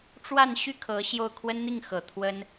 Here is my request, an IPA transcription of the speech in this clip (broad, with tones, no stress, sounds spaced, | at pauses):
ʈ͡ʂ w a˥˧ n ɕ y˥˩ kʰ ɤ˧˥ ɕ j o˥˩ ʊ̯ kʰ w ə˥ n n̪ i˥˩ ŋ x ɤ˨˩ t̪ʰ w ə˥ n